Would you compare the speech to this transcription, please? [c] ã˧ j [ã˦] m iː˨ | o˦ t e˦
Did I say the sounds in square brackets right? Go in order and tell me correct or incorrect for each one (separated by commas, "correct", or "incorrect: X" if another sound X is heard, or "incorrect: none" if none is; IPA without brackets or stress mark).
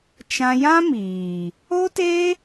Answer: incorrect: t͡ʃ, correct